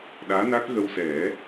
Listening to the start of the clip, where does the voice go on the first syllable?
rising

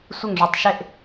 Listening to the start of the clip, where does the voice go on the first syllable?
falling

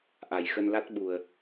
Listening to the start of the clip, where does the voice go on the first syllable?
low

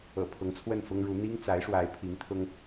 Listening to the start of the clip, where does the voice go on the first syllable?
low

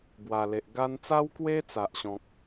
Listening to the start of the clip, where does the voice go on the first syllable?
low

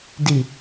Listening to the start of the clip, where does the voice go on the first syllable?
low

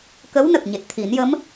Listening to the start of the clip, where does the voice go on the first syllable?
rising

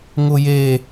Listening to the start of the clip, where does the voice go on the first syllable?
high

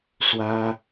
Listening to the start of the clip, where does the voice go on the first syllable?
high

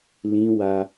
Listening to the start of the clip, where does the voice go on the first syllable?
high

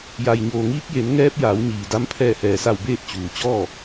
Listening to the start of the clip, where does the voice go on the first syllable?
low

